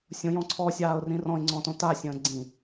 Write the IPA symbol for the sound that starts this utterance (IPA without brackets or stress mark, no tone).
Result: sʲ